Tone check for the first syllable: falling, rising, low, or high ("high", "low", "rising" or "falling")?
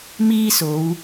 high